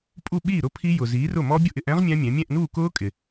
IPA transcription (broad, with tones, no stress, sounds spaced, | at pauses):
pʼ u˥˧ ɓ iː˥˩ ɾ ʊ˥˧ pʰ i˦˥ j ʊ˨ z iː˨˥ r ʊ˥˩ m ɔ˦˥ bʲ ʊ˥˧ ʔ ɪ˨˥ ʔ ɛ̃˦˥ ʁ mʲ ɛ̃˦˥ mʲ ẽ˨˥ mʲ ẽ˥˧ ʔ n uː˥˧ k ʊː˦˥ kʼ ɪ˨